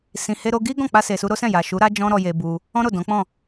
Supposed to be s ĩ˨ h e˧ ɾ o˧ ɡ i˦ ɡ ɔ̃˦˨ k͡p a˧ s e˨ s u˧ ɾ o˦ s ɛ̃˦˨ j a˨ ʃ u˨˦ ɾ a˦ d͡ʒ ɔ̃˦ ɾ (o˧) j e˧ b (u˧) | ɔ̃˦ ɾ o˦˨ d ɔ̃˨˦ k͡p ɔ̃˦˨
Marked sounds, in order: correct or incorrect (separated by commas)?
incorrect, correct